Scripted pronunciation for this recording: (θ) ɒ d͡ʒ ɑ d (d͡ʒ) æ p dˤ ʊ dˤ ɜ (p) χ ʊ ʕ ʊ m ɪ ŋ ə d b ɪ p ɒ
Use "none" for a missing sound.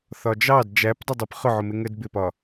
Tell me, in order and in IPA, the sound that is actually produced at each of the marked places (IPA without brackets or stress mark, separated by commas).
θ, d͡ʒ, p